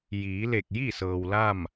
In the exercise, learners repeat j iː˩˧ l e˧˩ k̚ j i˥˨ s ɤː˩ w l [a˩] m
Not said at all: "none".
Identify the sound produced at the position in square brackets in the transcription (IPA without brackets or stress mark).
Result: a˥˨